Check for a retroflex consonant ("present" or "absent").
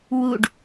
present